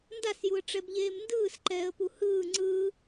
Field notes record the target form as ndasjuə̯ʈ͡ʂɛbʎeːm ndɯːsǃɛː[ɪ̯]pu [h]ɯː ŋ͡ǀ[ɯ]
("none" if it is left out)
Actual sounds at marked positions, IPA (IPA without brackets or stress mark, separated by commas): ə̯, h, ɯ